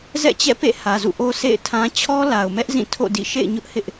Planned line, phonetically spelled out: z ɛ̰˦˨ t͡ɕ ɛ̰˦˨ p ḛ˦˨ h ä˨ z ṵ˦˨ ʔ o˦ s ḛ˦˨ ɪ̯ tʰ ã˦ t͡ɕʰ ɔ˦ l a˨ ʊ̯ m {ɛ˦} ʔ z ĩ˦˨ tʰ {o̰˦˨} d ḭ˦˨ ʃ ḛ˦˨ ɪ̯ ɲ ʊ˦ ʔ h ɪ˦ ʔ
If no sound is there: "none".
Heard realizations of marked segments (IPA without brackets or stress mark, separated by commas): ɛ˦, o̰˦˨